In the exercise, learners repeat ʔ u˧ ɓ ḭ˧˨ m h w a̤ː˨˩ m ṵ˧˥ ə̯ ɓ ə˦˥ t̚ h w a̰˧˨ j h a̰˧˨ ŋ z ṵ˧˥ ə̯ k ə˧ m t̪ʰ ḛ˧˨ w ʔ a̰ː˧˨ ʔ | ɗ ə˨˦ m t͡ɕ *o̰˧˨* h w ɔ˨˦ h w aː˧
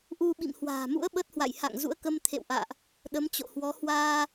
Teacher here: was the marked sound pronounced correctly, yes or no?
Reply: yes